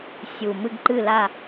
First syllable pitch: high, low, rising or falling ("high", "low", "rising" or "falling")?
low